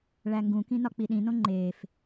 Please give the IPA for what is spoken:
ɭæŋɡũkĩ nɒk͡piɗĩnõ ŋ͡ǃef

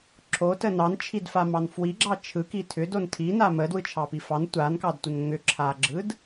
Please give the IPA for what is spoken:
ǁʰotə nɑnt͡ʃʰidfamɑn fwiɡ͡ǁɑ t͡ʃʰɯki tʰʏdon tʰina mədwɯt͡ʃʰɑpi fɑn tʷankɑdtʷən ŋʏǁʰaɡ͡ǁɯd

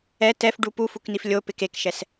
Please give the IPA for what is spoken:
ɛ tɛfɖu pufuknif lʲopɪ kekʃɛs

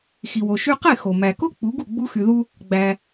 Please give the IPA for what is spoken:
xi˩wo˩ ʃy˧qe˥˩ xo˩ mæ˩ko˥ k͡pu˩˥ɡu˥˩ ɡ͡bu˧xy˩ðu˧ | ɡ͡bæ˩

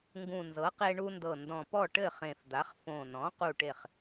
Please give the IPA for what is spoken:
ŋɡũ˨˩nzɤ˩˥qe˧ ɳu˧ndɤ˨˩ ndɔ̃˨˩pɔ˥˩ʈɘ˥˩ χẽ˨˩fd̪a˩˥χ fõ˨˩nɔ̃˩˥ qu˥˩ʈe˥˩χ

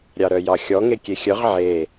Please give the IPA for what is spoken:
ɾʲɑɾœjɑxʲɔ ŋekʲexʲœʁ ʕe

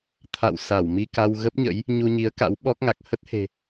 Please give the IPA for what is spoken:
t̪ʰa̰˧˨w sa˧˩wmi˧ka˧w ɣə˦˥p̚ɲə̰˧˥j | ɲu˧ɲi˨˦ə̯ka̰˧˥w ɓɔ˦˥k̚ŋa˨˩k̚ hə˦˥t̚he̤˨˩

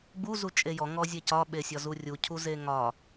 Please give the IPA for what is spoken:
ɡ͡bu zut͡ʃʼejɔ ŋɔzʲecɒ ɓesʲɒzurʲu cʰuzeŋɒ

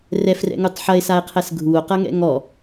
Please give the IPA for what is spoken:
rɛfrɛ̰ŋutˤ ħɐe̯sae̯qʰɛs ɡʱuo̯qɐŋɛ̰ ŋɔ

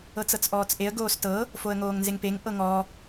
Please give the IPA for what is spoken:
ɤt͡sɤt͡sʔɔːt͡sʔeə̯ ɡoːstɤ | foə̯ŋoːŋnzeŋpeŋ ʔɤŋɔ

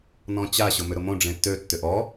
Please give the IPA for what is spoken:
nɔ̃t͡ɕa ɕʊmʏɾʊmõ ɖ͡ʐẽtːø tːʏʔɔ

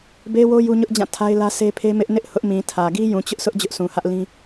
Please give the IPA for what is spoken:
be˦wo˦ ju˦ɲʊ˦ʔd͡ʑã˦˨ tʰa˦ɪ̯lä˦se˦pʰe˦ mɪ˦ʔnɪ˦ʔ hʊ˦ʔmĩ˨ tʰä˨ ɡi˦jũ˨t͡ɕʊ˦ʔsʰʊ˦ʔ d͡ʑʊ˦ʔsũ˨hä˦ʔlĩ˦

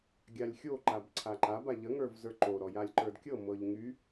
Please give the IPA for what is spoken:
ɡʲalʲxʲo ǃabǀʰaǃab aʎə ŋə˞vzə˞ǃo ɾɔjalʲǃə˞dkʲɤ mɤʎŋy

